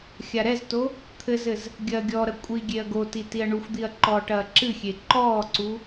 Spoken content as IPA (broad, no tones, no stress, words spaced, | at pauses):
xʲaɾɛzto | t̪ʰɘzɘz | ɡʲɐːɡʲɔɾɐ kʷʼi ɡʲeɐ̯ɡoti tiɐ̯ɳuxʷd̪iɐ̯ ǃɔːʈɐːǁɨxʲe ǃɔːǀu